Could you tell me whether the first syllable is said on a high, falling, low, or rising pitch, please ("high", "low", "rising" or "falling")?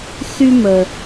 high